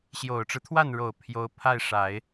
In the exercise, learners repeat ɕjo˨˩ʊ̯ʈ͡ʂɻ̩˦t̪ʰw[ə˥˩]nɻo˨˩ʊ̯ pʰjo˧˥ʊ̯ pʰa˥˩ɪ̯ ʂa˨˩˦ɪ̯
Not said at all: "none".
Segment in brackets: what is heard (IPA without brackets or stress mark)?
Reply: a˥˩